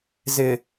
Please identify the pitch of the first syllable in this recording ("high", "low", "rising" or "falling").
low